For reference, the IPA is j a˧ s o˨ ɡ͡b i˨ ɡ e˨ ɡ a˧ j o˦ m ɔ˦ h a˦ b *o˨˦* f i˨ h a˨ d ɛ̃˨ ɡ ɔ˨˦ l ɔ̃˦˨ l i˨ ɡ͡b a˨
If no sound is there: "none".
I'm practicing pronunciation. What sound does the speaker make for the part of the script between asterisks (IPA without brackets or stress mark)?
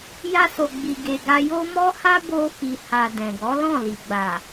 o˧